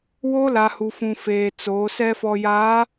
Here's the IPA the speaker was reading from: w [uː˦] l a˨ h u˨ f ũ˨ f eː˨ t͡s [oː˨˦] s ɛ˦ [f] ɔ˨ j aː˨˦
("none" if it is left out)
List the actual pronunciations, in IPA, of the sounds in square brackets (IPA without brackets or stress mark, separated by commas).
oː˦, oː˨˦, f